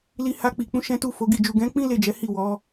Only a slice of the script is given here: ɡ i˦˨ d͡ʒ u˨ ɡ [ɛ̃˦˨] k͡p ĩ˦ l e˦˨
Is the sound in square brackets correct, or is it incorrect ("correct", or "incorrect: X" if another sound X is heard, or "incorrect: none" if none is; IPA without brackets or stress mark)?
incorrect: ɛ̃˨˦